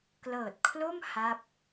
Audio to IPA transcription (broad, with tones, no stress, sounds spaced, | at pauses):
k l ɤː˨˩ t̚ kʰ l o˥˩ m h a˦˥ p̚